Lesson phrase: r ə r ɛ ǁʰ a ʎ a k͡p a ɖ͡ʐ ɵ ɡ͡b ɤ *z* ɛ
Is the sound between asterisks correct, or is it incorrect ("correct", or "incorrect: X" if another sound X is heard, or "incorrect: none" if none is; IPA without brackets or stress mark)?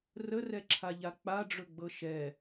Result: incorrect: ʃ